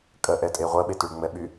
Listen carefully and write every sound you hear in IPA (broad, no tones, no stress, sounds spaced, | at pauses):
kʼ ɜ ʔ ɛ tʼ e ʁʷ ɜ ɓ e t y ɭ ŋ͡m ɛ ɓ y